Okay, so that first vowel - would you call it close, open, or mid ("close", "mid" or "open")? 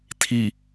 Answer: close